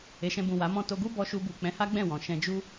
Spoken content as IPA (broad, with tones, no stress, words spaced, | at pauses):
e˨ʃɛ̃˧bũ˨ wa˨˦ mɔ̃˧to˧ɡu˦ bɔ˧ʃu˧bu˨ k͡pɛ̃˨˦ha˦ɡ͡bɛ̃˦˨ wɔ̃˨ ʃɛ̃˧d͡ʒu˦